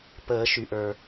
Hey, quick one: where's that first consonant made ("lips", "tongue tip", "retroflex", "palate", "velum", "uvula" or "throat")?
lips